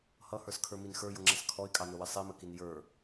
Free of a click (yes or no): no